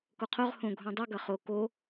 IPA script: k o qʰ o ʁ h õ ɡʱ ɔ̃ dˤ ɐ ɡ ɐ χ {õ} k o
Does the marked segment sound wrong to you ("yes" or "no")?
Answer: yes